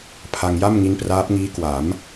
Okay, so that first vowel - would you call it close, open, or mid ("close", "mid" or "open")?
open